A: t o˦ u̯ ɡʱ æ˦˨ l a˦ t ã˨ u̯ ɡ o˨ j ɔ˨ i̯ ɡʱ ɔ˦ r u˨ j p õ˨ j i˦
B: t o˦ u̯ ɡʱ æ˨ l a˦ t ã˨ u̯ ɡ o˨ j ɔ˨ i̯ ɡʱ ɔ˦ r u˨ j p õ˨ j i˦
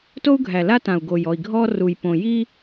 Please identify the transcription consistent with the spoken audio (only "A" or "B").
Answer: B